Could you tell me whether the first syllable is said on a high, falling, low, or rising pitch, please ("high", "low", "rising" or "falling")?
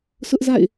high